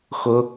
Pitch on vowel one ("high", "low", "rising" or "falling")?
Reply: low